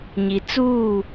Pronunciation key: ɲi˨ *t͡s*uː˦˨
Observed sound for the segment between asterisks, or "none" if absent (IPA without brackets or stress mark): t͡s